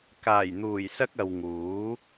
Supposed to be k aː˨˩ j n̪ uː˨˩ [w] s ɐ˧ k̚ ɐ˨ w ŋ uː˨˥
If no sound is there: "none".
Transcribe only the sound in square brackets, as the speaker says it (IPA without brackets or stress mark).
j